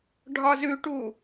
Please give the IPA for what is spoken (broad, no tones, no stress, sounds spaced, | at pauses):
ɖʱ ɒ z ʉ ʈ u